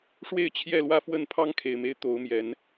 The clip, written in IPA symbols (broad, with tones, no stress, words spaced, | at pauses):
ʂwe˥˨ɪ̯t͡ɕʰjɛ˥˨lwä˥˨fwə˥˨n pʰɑ˦ŋkʰe˨˩ɪ̯me˦ɪ̯ t̪o˨˦ʊ̯mjɛ˨˦n